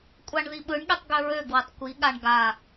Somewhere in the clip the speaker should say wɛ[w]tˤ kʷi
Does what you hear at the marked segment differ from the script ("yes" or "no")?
yes